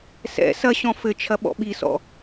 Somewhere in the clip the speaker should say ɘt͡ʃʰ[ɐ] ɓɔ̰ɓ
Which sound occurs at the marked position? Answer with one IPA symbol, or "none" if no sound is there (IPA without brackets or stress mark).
ɐ